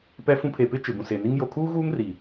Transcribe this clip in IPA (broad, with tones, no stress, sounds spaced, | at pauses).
p ɛ˦ f ũ˦ pʰ e˨ p ɪ˦ t͡ʃ ɪ˨ b ũ˨ s eː˨ n i˦ ŋ j o˨ kʰ uː˦ ɣ uː˦ ŋ r i˨